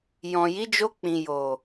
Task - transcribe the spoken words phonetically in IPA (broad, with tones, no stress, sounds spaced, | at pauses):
j ɔ̃˨ j i˨˦ d͡ʒ o˧ k͡p ĩ˨ j o˨